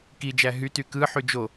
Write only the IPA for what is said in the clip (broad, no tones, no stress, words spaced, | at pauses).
kid͡ʒæ ɦyty kɯ ħyd͡ʒo